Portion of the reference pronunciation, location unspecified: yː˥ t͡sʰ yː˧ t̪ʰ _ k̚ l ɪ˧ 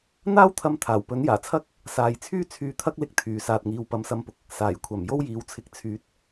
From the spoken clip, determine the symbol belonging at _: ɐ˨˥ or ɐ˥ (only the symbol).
ɐ˥